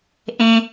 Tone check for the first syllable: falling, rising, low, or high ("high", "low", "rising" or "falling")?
low